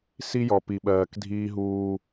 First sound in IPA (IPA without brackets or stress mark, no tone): s